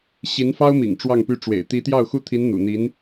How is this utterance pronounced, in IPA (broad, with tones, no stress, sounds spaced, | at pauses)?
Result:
ɕ i˧˥ n f ɑ˥ ʊ̯ m ḭ˨˩ ŋ ʈ͡ʂ w ɑ˥˩ ŋ p y˥ ʈ͡ʂ w ḛ˨˩ ɪ̯ t̪ i˧˥ t̪ j ɑ˥˩ ʊ̯ x u˥ t̪ʰ i˧˥ n n̪ ṵ˨˩ n̪ i˧˥ n